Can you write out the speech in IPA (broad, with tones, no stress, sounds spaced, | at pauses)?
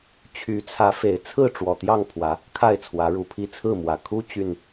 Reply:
t͡ɕʰ y˨˦ t͡sʰ ä˨˦ f e˨˩ ɪ̯ t͡sʰ ɹ̩˥˨ ʈ͡ʂ w ɔ˨˩ t̪ j ɑ˥˨ ŋ pʰ w ä˨˦ | kʰ a˥˨ ɪ̯ t͡sʰ w ä˨˦ ɻ u˨˩ pʰ i˥˨ t͡sʰ ɹ̩˥˨ m w ä˨˩ kʰ u˦ t͡ɕ y˨˩ n